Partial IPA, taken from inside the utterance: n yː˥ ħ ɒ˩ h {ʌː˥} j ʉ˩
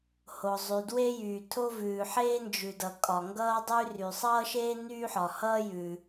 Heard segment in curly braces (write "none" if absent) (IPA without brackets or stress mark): ʌː˥